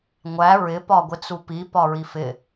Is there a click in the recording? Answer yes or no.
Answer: no